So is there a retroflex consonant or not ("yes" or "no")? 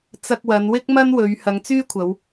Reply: no